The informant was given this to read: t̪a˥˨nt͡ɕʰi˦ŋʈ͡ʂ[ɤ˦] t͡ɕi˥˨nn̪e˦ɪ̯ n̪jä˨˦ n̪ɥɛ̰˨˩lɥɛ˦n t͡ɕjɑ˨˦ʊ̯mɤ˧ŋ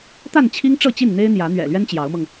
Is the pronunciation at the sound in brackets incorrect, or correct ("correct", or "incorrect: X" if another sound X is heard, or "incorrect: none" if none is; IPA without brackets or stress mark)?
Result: incorrect: ɤ˥˨